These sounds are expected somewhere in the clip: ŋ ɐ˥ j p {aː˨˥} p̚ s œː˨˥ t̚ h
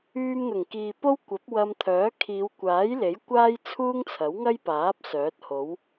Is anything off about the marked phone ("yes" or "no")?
no